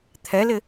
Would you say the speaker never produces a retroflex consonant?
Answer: yes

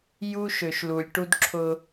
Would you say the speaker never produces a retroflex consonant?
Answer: no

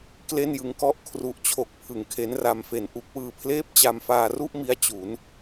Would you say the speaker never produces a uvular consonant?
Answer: yes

